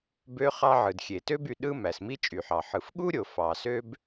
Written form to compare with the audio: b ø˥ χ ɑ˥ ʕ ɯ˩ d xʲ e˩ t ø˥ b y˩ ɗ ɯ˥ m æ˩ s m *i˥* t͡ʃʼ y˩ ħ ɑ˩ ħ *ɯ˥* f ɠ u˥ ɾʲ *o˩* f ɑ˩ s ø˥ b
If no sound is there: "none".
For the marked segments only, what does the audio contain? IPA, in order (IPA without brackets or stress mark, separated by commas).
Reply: i˥, ɯ˩, o˩